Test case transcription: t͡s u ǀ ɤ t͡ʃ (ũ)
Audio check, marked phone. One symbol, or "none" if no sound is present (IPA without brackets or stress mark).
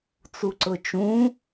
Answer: ũ